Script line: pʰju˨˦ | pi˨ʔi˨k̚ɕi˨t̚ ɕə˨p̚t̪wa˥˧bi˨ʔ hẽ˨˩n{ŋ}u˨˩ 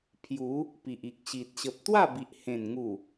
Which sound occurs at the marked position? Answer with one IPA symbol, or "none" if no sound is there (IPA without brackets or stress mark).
ŋ